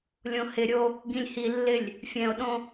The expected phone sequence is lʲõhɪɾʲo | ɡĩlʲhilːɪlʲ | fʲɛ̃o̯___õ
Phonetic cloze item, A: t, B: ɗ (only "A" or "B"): B